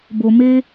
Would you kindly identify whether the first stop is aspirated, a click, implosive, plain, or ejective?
plain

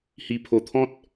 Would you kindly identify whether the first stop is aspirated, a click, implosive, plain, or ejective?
aspirated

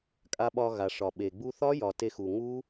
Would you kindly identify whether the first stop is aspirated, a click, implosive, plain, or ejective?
ejective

